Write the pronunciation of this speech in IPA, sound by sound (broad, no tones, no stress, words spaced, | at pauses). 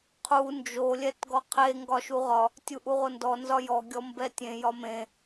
qʰu nd͡ʒo lʲɛtɡɔqʰe ŋɡɒʃuʁɒ | tʲuʔuʁondɔ nzɒjɔ ɡʲɔmbɛtʲẽ jɒmẽ